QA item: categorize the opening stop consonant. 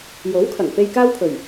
aspirated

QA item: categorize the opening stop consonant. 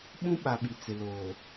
implosive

